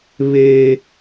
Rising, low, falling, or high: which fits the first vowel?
high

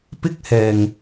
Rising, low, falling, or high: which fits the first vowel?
high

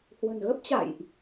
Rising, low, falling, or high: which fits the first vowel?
low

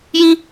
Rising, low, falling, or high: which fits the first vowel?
high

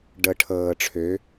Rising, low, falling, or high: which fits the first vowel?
low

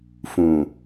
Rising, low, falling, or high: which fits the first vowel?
low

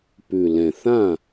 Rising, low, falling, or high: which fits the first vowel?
low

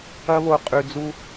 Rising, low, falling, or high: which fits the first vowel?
high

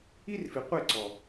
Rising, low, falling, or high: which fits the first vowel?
high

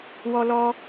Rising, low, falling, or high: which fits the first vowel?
high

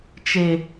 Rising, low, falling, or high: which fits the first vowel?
low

